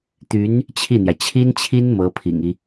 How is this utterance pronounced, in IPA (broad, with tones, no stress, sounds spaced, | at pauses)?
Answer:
t̪ y˧˥ n | t͡ɕʰ i˥˩ n̪ j ä˩ t͡ɕʰ i˥ n t͡ɕʰ i˥ n m ɤ˧˥ pʰ ḭ˨˩ ŋ i˦